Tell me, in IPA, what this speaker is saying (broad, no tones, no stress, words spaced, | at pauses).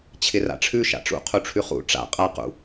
t͡ɕʰɪra̰ʈ͡ʂʰʉ ʃa̰ʈ͡ʂṵ qʰuʈ͡ʂʰʉχṵ ʈ͡ʂa̰ qʼa qṵ